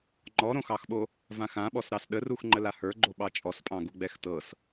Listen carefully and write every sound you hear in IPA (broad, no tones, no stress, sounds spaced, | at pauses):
ŋ͡ǃ ɔ ɾ õ x ɑ x ɓ o | v ã x ã ɓ ɔ s ɾ ɑ s ɗ ə r u x ŋ͡ǃ ə l a h ə˞ ɡ͡ǃ o ɓ ɑ t͡ʃʼ ɔ s pʼ ɑ̃ ɡ u ɡ͡b ɛ x t ɤ s